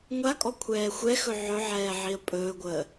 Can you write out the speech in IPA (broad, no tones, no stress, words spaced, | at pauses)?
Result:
ŋʷakʼɔ kʷʰɛːxʷɛxɵ ʕɵʕɛː ʕiə̯pʼɵːɡʷəː